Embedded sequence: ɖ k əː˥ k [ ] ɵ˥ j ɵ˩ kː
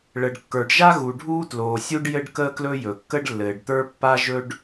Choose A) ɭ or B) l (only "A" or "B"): B